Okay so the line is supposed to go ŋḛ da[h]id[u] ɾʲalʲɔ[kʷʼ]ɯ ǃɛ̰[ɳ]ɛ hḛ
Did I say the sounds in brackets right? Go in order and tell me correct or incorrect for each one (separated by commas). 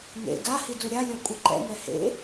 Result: correct, correct, correct, incorrect